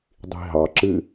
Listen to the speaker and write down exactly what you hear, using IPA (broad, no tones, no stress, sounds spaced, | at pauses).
dˤ i̤ ɦ ɑ ǁ ɨ